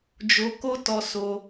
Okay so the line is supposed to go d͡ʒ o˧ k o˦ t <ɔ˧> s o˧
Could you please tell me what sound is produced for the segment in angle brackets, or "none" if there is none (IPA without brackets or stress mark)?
ɔ˧